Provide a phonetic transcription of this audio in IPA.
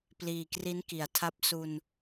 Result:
p l iː˨˩ k r i˦˥ n k i˩˦ a̯ tʰ a˥˩ p̚ s u˧ n

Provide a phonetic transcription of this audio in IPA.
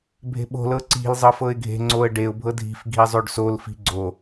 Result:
bʱ e̤ ɓ o̤ l ɤ ǀ i̤ l zˤ ɤ f ɤ ɪ̯ ɡʱ e̤ ŋ͡ǀ o ə̯ ɖ e ʊ̯ bʱ ɤ dʱ i̤ f ɡʱ i zˤ o ɖ s o l f i̤ ɡ͡ǀ o

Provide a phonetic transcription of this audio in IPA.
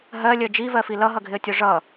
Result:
ɦ ɜ lʲ ɜ d͡ʒ i v ɜ f i l ʌ ɦ ʌ ɡʱ ɪ ə̯ tʲ ɔ ʐ ʌ

